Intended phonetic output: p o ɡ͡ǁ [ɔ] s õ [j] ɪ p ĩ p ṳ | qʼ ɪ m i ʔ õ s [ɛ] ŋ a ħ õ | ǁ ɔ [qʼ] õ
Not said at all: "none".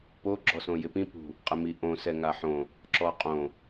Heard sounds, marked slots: ɔ, j, ɛ, qʼ

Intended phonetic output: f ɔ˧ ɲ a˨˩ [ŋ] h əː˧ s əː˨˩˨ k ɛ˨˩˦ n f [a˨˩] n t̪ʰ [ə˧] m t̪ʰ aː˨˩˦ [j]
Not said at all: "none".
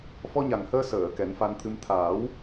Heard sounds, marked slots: ŋ, a˧, ɨ˧, w

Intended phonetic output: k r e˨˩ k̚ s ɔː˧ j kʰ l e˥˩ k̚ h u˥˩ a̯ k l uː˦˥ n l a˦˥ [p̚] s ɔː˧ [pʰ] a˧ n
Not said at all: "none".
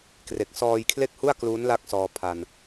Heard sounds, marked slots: k̚, pʰ

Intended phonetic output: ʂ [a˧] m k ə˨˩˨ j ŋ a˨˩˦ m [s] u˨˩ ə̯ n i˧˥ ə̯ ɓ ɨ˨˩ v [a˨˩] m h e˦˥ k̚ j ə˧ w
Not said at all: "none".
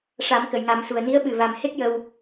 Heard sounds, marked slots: a˨˩˦, s, a˨˩

